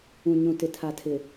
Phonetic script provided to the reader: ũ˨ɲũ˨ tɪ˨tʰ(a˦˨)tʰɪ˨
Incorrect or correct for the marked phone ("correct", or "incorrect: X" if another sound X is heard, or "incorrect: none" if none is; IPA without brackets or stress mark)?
incorrect: a˨